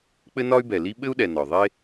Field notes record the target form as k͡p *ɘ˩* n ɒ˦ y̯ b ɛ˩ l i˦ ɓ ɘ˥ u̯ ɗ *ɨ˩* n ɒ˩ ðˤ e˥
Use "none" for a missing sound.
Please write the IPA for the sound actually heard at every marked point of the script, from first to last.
ɘ˦, ɛ˩

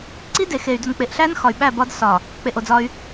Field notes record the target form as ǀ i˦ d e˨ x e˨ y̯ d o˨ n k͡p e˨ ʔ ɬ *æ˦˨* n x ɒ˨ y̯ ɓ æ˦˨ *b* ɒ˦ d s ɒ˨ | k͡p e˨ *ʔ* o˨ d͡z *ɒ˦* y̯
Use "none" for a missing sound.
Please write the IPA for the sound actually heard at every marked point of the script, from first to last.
æ˦, b, ʔ, ɒ˦

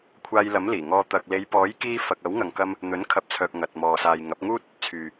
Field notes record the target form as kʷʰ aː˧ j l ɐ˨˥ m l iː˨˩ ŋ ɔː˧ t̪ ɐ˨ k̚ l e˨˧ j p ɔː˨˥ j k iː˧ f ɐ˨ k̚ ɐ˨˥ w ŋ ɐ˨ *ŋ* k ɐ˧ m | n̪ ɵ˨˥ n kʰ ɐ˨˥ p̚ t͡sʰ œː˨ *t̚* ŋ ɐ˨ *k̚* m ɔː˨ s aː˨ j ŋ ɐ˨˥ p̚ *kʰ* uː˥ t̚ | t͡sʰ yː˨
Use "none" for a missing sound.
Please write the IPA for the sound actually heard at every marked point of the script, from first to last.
ŋ, k̚, t̚, ŋ

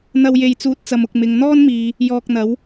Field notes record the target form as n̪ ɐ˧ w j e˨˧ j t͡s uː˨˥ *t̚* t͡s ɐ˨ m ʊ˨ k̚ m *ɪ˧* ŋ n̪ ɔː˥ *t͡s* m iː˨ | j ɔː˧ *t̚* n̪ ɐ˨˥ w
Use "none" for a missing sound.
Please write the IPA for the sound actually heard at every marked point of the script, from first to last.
t̚, ɪ˨, n, k̚

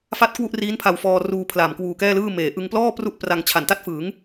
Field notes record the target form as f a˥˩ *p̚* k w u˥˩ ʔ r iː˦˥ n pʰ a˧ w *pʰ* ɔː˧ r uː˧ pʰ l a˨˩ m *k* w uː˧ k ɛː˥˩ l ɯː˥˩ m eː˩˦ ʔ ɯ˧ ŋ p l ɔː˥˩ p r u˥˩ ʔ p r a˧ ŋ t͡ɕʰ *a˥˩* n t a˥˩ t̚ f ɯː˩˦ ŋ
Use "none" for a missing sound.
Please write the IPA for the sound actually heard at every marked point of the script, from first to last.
t̚, f, k, a˨˩

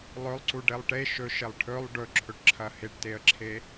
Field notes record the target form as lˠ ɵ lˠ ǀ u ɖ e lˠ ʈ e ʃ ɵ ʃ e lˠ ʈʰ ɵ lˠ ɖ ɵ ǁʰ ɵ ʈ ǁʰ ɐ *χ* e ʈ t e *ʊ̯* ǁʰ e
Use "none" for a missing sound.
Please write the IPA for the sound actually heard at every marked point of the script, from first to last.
h, ə̯

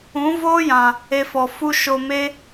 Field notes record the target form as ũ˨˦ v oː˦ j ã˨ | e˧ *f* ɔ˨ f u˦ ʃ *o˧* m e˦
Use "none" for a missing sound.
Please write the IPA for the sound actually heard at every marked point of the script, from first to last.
f, o˧

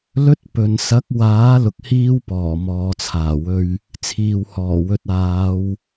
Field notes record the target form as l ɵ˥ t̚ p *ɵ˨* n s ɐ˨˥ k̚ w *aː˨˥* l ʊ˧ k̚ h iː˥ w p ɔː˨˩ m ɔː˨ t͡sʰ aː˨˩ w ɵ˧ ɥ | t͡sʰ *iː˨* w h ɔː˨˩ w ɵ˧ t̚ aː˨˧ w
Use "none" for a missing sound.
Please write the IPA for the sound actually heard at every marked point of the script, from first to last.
ɵ˨, aː˨˥, iː˨

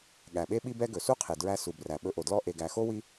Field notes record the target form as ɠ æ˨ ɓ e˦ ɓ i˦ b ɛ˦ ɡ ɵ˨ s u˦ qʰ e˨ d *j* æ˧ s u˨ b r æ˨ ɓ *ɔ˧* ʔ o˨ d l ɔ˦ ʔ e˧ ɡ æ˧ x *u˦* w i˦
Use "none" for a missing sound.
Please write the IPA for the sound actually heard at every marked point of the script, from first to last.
ɹ, ɵ˧, o˦

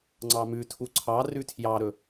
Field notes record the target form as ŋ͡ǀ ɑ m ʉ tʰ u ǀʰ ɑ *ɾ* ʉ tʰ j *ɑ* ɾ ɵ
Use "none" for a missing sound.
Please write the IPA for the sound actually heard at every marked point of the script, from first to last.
r, ɑ

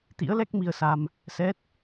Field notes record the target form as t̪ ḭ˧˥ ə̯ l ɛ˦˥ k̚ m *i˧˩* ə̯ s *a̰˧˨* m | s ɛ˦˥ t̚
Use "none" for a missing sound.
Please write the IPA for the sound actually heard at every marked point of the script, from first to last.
i˧, a˧

